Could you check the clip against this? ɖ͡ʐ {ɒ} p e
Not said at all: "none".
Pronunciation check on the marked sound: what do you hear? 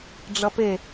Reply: ʌ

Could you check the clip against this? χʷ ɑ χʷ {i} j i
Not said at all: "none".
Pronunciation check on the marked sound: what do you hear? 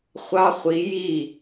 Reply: i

